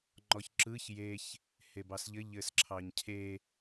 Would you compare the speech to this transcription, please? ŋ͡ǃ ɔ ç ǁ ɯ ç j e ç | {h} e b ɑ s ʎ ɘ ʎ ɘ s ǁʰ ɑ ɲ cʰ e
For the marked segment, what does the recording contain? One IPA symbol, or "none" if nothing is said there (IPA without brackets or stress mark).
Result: h